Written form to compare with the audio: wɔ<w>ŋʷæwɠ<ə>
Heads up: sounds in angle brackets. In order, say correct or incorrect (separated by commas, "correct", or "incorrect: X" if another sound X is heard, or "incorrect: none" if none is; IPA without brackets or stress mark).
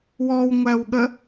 correct, correct